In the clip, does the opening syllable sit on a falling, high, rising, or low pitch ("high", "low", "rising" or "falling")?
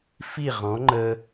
falling